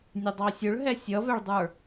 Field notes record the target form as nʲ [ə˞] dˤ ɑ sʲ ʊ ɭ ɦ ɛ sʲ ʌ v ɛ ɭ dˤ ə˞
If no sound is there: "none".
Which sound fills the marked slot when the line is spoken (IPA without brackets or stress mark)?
ə